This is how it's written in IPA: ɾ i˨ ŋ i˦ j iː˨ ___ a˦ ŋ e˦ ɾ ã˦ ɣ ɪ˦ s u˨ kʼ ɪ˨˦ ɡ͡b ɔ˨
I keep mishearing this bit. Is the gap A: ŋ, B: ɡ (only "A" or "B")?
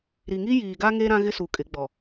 B